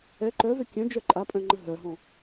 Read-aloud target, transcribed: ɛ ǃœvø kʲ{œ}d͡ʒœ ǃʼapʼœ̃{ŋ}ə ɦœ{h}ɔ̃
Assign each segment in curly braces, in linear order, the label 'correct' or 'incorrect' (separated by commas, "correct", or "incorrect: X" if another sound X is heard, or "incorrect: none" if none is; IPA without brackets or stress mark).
incorrect: œ̃, incorrect: ŋ͡ǃ, incorrect: ɦ